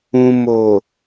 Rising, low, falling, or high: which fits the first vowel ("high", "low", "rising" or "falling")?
low